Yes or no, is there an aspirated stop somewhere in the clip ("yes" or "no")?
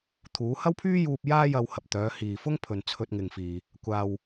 yes